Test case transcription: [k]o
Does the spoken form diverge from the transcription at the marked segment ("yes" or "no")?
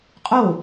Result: yes